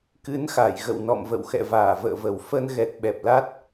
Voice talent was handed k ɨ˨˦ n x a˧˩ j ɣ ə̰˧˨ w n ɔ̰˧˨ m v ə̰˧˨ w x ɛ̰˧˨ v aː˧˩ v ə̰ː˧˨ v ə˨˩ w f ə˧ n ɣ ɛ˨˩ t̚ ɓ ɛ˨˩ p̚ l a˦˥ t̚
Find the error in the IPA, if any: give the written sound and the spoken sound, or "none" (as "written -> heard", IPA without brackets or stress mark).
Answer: none